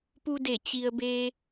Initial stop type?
plain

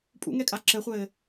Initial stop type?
ejective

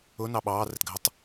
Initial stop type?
implosive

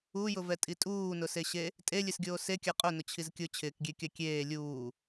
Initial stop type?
ejective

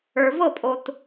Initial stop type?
ejective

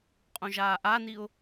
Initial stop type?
ejective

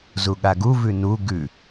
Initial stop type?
implosive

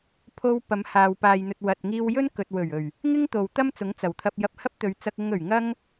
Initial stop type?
aspirated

